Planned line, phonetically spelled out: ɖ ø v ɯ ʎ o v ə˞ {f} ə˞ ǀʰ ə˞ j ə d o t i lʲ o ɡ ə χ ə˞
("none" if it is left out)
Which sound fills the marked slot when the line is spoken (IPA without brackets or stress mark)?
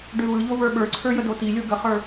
ɓ